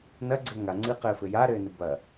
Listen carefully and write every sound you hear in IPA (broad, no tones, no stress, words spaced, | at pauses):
nɐ ɡ͡ǀɘːŋaŋ͡ǀɨːqɘː fɘja ɾɘːnɨbɐ